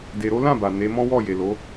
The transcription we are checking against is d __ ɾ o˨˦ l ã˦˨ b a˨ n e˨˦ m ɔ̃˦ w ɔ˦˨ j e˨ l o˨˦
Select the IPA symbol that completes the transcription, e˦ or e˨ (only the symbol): e˨